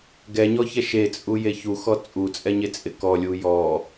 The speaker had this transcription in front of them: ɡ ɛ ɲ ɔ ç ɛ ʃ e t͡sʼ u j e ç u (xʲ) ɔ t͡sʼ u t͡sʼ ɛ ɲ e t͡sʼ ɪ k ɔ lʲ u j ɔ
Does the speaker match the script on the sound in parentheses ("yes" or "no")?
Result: no